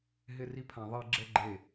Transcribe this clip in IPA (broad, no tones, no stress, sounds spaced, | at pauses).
ɦ ɪ r i pʰ ã ðˤ i ɡ͡ǁ ɛ ɡ͡ǃ e